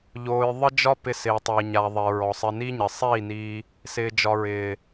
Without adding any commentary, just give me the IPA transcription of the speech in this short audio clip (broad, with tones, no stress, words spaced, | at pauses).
ʎoː˧j ðˤə˦d͡ʒɒ˦pɪ˧ sɪː˨tˤɪː˨ ɲa˨ðˤe˨ɹɔ˨ sˤɪ˧ ni˦ɲɪ˨ sˤiː˦˨niː˧ | sɪː˨d͡ʒɒ˨ɹɪː˨